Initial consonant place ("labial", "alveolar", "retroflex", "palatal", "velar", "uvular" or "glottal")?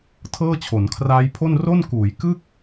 alveolar